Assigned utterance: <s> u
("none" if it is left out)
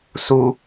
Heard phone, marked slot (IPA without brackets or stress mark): s